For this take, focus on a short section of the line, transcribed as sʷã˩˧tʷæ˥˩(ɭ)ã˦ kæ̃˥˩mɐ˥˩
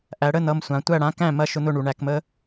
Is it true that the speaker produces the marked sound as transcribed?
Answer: no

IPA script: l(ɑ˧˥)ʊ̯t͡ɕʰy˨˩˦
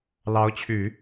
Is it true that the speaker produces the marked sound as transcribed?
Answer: yes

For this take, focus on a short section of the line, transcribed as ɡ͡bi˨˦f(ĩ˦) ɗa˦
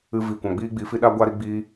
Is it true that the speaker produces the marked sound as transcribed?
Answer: no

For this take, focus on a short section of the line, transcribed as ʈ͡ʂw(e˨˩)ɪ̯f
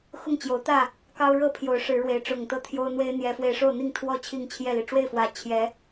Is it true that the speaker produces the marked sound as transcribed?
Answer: no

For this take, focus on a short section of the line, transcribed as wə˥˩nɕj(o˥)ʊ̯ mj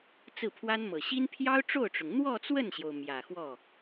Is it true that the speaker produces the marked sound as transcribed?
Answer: no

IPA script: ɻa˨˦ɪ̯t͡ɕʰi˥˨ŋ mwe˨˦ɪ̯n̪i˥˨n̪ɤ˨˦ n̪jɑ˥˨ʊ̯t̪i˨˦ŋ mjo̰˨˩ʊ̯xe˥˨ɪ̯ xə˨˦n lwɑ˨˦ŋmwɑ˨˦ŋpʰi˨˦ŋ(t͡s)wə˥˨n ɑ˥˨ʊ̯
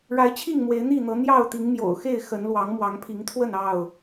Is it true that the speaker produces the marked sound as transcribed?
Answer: no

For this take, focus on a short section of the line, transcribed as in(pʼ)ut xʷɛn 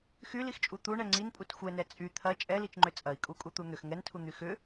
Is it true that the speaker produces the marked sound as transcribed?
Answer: yes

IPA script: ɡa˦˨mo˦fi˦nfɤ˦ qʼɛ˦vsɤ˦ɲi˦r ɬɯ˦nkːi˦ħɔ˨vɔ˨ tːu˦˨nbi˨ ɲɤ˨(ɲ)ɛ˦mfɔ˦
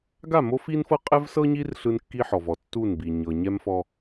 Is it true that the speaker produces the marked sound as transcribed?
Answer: yes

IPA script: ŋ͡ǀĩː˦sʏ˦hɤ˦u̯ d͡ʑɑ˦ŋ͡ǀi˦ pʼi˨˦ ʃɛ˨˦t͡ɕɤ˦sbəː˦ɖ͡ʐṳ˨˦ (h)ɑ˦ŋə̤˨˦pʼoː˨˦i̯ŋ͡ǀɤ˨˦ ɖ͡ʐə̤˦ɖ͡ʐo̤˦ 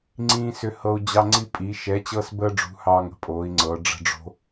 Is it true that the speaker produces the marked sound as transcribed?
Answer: yes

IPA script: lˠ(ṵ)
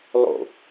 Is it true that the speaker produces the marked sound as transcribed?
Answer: no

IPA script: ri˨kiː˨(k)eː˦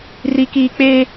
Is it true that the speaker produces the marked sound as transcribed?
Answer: no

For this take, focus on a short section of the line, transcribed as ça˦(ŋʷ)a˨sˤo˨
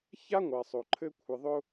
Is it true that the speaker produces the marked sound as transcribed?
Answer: yes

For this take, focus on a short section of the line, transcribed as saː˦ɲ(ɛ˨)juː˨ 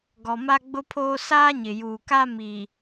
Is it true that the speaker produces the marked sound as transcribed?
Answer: no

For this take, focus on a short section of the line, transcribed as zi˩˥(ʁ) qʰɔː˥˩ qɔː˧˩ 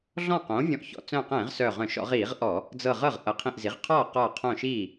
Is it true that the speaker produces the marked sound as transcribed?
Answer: yes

